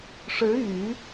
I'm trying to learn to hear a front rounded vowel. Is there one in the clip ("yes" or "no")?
yes